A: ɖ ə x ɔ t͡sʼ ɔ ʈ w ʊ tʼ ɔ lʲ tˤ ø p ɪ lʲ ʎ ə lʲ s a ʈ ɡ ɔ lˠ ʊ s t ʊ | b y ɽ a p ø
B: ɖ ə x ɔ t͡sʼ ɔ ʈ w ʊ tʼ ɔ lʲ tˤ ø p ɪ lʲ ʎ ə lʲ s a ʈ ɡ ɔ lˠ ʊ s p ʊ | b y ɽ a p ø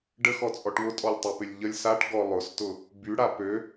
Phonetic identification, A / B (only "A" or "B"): A